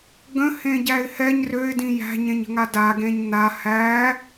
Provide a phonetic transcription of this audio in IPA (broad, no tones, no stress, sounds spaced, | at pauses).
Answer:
ɡ ə̃ h ẽ ɟ æ ɪ̯ h ɛ ɲ r ø ɪ̯ d ĩ j æ̤ ɲ ẽ ɲ ə̤ ŋ a d a ɡ ẽ ɲ n a h æ